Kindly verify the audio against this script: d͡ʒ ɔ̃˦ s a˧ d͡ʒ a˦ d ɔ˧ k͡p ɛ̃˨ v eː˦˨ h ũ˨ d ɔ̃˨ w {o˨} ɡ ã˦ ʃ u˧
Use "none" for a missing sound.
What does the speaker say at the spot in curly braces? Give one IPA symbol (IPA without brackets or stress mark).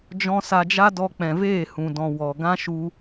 ɔ˨